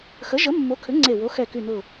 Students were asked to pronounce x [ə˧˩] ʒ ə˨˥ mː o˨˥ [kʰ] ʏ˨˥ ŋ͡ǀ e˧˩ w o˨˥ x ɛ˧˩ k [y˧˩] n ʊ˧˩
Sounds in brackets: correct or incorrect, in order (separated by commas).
incorrect, correct, correct